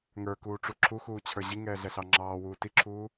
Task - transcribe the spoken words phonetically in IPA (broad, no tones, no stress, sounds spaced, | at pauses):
ŋ ə˞ k uː ʈ͡ʂ u ǁʰ u x uː t͡ɕʰ ə˞ ʑ i ŋ ɛː ɮ ɛ ɬ ɑ ŋ͡ǁ ɑː w uː t i ǁʰ uː